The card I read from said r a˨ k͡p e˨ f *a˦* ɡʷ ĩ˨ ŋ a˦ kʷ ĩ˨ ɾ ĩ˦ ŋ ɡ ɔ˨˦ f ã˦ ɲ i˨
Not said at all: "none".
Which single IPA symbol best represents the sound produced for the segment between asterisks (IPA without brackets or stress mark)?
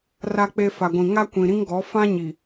a˨